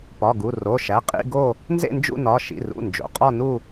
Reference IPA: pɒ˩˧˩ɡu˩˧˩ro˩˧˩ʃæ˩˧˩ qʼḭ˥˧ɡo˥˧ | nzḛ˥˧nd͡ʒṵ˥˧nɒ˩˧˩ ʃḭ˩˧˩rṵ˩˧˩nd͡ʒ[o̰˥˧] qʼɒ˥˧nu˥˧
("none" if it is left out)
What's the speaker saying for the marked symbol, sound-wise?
o̰˩˧˩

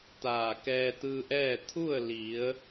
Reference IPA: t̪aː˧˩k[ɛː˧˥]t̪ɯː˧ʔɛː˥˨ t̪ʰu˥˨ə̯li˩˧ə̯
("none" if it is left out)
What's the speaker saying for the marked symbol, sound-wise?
ɛː˧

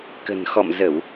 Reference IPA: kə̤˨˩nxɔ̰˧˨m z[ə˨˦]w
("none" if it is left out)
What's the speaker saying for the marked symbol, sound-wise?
ə˧˩˨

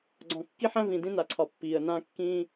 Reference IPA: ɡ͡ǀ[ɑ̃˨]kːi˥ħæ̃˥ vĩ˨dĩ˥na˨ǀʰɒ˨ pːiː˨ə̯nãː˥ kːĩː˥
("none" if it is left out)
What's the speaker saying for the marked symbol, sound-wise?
ɔ̃˨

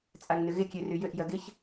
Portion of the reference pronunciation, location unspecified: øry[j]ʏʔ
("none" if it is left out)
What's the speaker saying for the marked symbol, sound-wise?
j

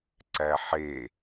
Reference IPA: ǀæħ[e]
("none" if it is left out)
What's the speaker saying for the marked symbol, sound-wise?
e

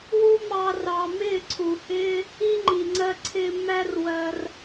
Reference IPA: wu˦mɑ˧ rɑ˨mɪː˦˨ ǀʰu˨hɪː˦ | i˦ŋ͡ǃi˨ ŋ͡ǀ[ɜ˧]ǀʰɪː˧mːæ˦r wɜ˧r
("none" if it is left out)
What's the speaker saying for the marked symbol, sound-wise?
ɜ˧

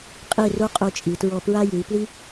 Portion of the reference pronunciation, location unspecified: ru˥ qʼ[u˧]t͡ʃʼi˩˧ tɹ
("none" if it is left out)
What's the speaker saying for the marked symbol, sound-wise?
u˧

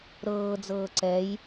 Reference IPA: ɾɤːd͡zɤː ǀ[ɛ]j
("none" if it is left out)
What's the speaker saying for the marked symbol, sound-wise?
ɛ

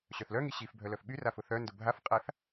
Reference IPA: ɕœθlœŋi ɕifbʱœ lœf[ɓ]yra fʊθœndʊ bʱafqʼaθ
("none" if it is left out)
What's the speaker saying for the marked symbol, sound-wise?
ɓ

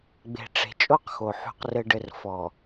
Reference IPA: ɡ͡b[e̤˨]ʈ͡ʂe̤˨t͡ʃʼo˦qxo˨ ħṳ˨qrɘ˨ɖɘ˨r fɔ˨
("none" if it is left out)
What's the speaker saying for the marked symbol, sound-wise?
e̤˨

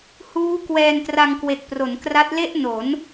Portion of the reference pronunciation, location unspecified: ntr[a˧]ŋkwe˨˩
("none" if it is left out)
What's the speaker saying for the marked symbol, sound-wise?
a˧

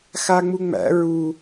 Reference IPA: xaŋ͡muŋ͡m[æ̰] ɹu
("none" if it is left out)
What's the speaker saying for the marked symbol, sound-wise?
æ̰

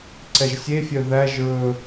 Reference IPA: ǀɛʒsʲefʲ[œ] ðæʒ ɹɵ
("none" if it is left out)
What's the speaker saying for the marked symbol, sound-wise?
œ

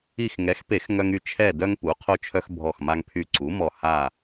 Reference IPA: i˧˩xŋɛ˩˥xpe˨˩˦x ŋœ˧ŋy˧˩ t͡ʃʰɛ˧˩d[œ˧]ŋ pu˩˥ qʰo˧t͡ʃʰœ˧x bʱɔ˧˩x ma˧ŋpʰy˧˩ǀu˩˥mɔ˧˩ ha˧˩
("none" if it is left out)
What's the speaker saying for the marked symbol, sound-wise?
œ˧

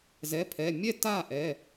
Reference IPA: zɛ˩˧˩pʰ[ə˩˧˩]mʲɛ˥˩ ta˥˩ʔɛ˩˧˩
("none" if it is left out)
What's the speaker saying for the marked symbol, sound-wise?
ɛ˩˧˩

